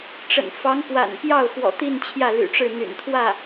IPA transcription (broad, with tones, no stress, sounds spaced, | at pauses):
ʈ͡ʂ ə̰˨˩ n f ɑ˧˥ ŋ p w a̰˨˩ n p j ɑ˥˩ ʊ̯ x w ɔ̰˨˩ t̪ i˥˧ n t͡ɕʰ j ä˥˩ l y̰˨˩ ʈ͡ʂ ɻ̩˥˩ n̪ y̰˨˩ n t̪ʰ w ä˥˩